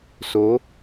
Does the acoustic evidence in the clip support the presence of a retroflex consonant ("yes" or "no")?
no